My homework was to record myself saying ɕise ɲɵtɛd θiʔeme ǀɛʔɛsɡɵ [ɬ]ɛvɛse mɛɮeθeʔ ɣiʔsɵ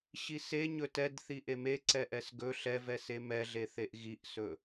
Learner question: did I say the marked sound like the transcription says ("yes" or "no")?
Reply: yes